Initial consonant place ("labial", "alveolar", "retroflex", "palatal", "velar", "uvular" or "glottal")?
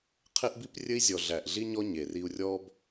uvular